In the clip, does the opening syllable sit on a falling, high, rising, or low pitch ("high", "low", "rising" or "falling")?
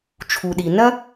low